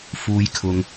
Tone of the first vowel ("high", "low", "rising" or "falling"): low